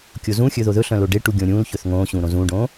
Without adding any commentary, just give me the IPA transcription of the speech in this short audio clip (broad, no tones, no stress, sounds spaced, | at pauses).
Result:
kʲ o z ũ xʲ ɵ ð o ð ɵ ɬ œ̃ l o ɖ e ʈ u ɡʲ õ ɾʲ ũː l ç ɵ θ ŋ õː ɕ ũː ɾ õ z ũː ɖ õː